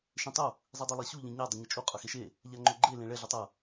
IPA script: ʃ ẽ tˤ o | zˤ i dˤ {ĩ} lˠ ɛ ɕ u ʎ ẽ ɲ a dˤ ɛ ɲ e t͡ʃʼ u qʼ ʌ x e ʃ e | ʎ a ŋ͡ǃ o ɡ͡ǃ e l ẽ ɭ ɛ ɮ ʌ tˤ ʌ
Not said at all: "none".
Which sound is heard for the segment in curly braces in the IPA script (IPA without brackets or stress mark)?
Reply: i